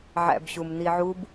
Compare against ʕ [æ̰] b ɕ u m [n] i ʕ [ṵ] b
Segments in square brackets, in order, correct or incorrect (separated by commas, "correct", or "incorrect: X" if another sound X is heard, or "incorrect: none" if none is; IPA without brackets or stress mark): correct, correct, incorrect: u